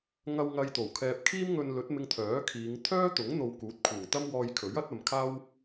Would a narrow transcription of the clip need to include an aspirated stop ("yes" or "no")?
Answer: yes